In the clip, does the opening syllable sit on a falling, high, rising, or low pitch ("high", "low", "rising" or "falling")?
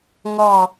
falling